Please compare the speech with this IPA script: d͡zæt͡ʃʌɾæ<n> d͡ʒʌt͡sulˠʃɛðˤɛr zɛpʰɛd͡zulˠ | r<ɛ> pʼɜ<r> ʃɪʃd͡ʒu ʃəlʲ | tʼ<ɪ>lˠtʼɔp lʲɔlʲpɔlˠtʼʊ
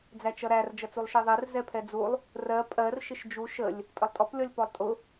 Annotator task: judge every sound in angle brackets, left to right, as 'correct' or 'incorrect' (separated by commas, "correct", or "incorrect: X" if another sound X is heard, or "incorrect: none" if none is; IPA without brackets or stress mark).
incorrect: r, incorrect: ɜ, correct, incorrect: ə